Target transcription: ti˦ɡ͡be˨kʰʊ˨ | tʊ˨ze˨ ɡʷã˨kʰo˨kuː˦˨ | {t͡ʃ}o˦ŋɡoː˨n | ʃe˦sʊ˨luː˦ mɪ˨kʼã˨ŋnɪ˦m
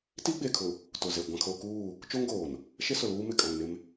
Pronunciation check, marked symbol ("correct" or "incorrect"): correct